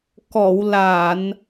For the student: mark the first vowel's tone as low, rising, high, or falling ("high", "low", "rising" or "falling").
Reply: low